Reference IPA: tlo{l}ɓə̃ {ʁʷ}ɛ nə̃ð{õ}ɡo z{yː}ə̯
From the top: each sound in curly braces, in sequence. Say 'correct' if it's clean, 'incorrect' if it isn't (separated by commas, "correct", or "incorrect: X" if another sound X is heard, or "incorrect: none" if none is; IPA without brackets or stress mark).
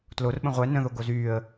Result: incorrect: r, correct, incorrect: o, correct